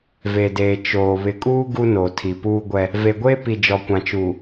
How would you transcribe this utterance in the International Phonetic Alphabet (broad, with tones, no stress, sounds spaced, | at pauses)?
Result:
v e˨ d eː˨ t͡ʃ oː˨ β ɪ˨ kʼ uː˦ ɡ u˦ n o˨ tʰ i˨ p uː˦ ɡʷ ɛ˦ | v e˨ ɡʷ eː˦ p i˨ d͡ʒ ɔ˨ kʷ ã˨ t͡ʃ uː˨